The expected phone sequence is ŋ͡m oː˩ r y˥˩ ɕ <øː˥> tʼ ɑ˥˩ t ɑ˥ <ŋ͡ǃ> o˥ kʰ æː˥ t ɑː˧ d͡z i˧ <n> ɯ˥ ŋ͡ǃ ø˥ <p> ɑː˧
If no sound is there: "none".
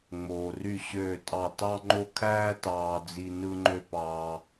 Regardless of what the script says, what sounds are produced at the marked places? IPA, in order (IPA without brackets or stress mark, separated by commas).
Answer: øː˥˩, ŋ͡ǃ, n, p